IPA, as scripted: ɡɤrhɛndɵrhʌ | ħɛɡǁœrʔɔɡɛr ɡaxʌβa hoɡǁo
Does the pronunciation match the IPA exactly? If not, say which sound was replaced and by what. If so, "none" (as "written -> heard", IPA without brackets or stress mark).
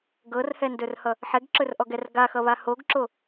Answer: œ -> ɵ